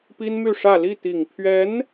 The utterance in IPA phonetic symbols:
pi˥nmy˥˧ʂä˥˧ li˥˩t̪i˨˩ŋ pʰɥɛ˧˥n

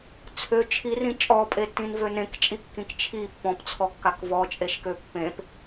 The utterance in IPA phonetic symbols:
t͡sʰø t͡ʃʰirĩ t͡ʃʼɔpʼetːĩnvø nẽkt͡ʃʼikːĩk t͡ʃʰi pːɔ̃pt͡sʰɔkːak vɔt͡ʃʼeʃkø pːẽp

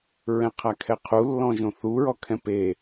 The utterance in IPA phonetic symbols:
ɹɛ̃qʰakʰɛqʰu lːɔ̃ʒõθu ɹɔkʰɛ̃pe

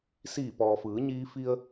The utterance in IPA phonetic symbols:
siː˧˩pɔː˩fɯː˩˧ ɲiː˧fi˧ə̯

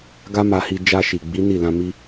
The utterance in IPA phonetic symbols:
ɡa˦ma˧hi˧ d͡ʒa˧ʃi˨ɡ͡bi˨˦ ni˦˨lã˧mi˦

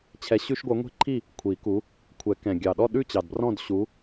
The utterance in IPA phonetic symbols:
t͡ɕʰɛ˨˥ɕʉ˦ʃɡʷœ˨˥ ŋʷe̤˥˨ǃʰi˥˨ | kʷʰi˨˩˦ku˨˥ | kʷʰɛ˨˩˦kɛ̃˨˩ ɡʲɑ˨˩ɗɔ˥˨ɗʉ˥˨t͡ɕɑ˨˩d brɔ̃˥˨d ɕu˨˥

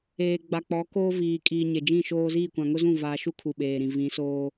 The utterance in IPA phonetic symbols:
eː˨ ɡ͡ba˨k͡pɔ˨˦koː˦ viː˨ kʼiː˨ ɲe˨d͡ʒĩ˦˨ʃoː˦ ziː˦˨kʷã˨ŋʊ˦zũ˦˨ vaː˨ʃu˦ kʰu˨ɓeː˨ɾĩ˨ vĩ˨˦soː˦

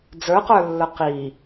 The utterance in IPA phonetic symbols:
d͡zə˞qə˞lːə˞ qi

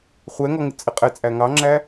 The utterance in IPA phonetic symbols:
χʷɛŋɔ ŋɪt͡sʼɪqʼɛt͡sʼæ ŋɑŋ͡ǁæ

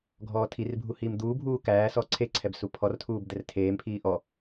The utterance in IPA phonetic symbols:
ɡʱɔːtʰirbʱu hiːmd̪uːbʱuː kæːsɔː ǀʰeǀʰɛb supʰɔrtʰuːb d̪ɛrtʰeːmpʰiː ʔɔ

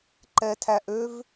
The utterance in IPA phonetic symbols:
ǃɛ˧tʰæ˧ʔ ø˦v

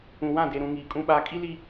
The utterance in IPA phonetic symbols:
ũ˨wã˦˨de˨ɾũ˨ ŋiː˨kʼũ˦ɓaː˦ kʼi˦li˦

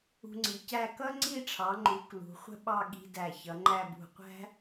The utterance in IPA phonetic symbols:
ṳ˧ŋ͡ǀi˩˧cæ˥˧ kʌ˥ŋ͡ǀi˥˧ʈ͡ʂʰɑ˩˧ŋ͡ǃu˩˧ klṳ˩˧χʷə̤˥ɓɑ˥˧ ɠi̤˧ dæ˧˩çʌ˩˧ŋ͡ǃæ˥˧ bṳ˧˩qʷæ̤˥

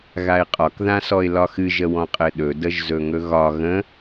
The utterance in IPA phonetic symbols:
ɣaɪ̯qʼɒk ðãsɔɪ̯lɒxɨ ʒəwɔ̃qʼɘɗɵ dəʒzɵŋɵɣɒ ɣə̃

